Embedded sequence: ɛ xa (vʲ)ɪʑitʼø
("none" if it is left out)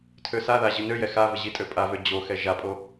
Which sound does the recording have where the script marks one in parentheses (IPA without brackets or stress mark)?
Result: v